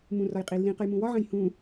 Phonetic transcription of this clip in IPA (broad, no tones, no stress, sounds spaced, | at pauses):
m ũ r ɒ j qʼ i lː ĩ q ə j m ũ w ɒ ʕ ɐ̃ j h ũ